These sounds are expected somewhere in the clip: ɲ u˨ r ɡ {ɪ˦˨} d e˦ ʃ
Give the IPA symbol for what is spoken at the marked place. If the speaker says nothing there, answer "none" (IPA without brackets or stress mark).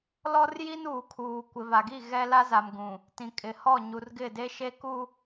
ɪ˦˨